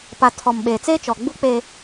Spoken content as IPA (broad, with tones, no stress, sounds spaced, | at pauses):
p a˨ tʰ ɔ˨ m ɓ eː˨ t͡s eː˦ t͡ʃ ɔ˨ ɡ͡b u˦ k͡p e˦